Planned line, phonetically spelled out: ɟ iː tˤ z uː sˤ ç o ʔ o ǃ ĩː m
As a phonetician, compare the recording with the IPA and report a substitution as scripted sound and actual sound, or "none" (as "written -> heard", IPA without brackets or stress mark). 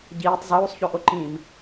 none